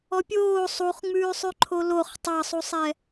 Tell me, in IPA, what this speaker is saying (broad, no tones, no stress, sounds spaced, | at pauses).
ɔ pʲ oː sˤ u χ ŋ͡m ʉː sˤ ʉ ǃʰ o l o χ tˤ ɑ sˤ u sˤ ɛ